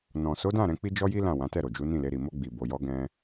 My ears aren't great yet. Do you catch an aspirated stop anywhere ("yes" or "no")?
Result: no